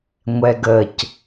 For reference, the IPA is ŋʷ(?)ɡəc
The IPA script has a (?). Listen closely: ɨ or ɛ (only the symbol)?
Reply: ɛ